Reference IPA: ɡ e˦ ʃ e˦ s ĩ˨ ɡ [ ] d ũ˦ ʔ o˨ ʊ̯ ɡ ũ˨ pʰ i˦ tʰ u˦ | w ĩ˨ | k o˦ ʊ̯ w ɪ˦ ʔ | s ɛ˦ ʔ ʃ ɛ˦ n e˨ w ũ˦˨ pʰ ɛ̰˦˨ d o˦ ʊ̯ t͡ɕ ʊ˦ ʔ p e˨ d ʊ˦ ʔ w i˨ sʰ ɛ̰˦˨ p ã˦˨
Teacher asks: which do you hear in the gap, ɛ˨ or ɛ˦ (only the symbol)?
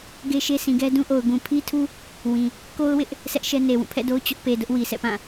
ɛ˦